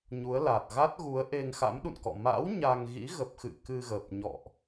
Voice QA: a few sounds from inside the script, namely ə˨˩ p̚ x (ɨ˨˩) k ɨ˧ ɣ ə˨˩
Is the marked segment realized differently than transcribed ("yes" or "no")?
yes